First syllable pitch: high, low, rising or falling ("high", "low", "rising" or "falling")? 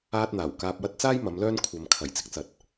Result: high